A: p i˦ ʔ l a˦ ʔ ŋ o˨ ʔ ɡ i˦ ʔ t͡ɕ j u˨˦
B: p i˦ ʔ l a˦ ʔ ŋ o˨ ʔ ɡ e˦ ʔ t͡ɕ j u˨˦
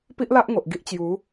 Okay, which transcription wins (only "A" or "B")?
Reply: A